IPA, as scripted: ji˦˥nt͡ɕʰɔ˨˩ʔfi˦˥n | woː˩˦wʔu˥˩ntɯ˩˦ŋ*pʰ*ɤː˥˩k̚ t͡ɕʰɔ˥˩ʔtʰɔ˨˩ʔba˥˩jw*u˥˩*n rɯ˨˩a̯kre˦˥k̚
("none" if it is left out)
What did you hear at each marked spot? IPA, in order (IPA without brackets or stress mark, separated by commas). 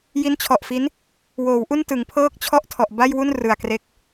pʰ, u˥˩